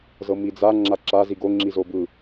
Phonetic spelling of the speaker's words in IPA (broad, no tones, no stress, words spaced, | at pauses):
zɤmid͡za ŋ͡ǁaǁa ziɡo ŋ͡ǁizobɯ